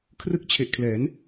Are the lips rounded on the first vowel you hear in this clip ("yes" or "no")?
no